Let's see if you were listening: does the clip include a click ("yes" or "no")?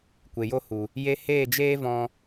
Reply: no